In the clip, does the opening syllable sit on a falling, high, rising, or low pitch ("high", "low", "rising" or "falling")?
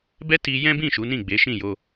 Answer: high